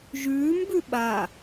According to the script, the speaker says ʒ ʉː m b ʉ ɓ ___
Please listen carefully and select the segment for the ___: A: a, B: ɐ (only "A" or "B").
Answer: A